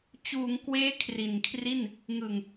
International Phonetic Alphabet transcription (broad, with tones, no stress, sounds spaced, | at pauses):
t͡ɕ uː˩˦ ŋ k w eː˦˥ kʰ r i˨˩ n kʰ r i˥˩ n | ŋ ɯ˨˩ ŋ